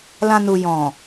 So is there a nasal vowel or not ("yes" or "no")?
yes